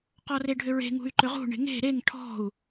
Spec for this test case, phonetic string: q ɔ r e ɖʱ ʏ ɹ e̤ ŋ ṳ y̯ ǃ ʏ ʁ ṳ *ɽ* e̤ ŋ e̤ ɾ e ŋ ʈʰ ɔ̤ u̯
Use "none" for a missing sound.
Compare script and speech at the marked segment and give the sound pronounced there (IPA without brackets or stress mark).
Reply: ɳ